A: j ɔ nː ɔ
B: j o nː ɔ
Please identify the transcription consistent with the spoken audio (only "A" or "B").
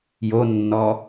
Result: B